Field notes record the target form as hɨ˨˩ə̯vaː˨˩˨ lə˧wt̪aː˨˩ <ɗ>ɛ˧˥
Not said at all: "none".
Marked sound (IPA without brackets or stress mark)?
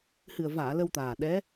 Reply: ɗ